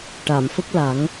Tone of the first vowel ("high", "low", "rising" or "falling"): low